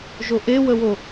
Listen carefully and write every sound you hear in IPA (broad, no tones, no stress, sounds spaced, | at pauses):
ʒ o ʔ e w ə w o